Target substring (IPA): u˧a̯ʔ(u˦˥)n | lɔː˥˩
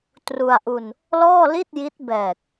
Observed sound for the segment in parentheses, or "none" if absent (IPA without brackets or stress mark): u˧